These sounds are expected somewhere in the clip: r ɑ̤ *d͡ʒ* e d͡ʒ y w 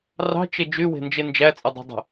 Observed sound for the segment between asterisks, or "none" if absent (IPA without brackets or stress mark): t͡ʃ